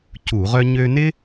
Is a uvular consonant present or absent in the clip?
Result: present